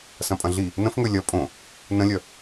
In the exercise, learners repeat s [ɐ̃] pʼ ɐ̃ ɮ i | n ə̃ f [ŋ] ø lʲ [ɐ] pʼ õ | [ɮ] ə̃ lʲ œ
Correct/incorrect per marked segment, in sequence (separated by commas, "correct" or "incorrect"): correct, correct, correct, incorrect